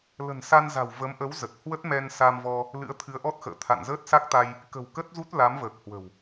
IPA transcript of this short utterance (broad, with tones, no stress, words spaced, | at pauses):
lə̤˨˩nsa˧nza̤˨˩w və˨˦mʔə˨˦wzə˨˩t̚ hwə˦˥t̚mɛ˧nsa˧mvɔ˧ | lɨ̰˧˥ə̯ t̪ʰɨ˨˦ə̯ʔɔ˦˥t̚xə̰ː˧˨ t̪ʰa̰˧˨nzəː˦˥t̚sa˦˥k̚t̪a˧j | kə̤˨˩w kə˦˥t̚zu˦˥t̚ la˨˦mvəː˨˩k̚hwə̤˨˩w